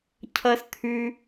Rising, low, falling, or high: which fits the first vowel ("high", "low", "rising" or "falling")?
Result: high